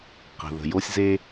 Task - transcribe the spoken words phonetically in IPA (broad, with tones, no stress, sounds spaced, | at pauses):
q ə̤˩ ð ə̤˩ j o˥ sʲ z e˥